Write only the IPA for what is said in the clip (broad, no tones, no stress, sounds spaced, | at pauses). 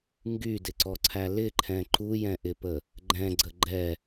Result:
ŋ ɡ y d ɪ ǀ ɔ ǀʰ æ l ɪ ǃʰ ɛ̃ ǃ u j ɛ̃ ʔ ɪ p ə | ɡ͡ǃ ɛ̃ ɡ͡ǀ ə ɡ͡ǃ ɛ